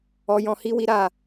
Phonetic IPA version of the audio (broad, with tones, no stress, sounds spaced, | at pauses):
ɔ˧ j ɔ̃˧ h i˦ w i˦ ɾ a˦˨